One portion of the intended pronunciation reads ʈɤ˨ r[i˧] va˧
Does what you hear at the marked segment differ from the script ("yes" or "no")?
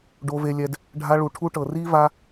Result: yes